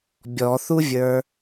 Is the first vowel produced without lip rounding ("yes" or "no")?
no